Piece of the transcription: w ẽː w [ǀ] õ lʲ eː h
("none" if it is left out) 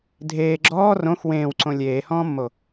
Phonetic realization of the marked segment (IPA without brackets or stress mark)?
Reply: ǀ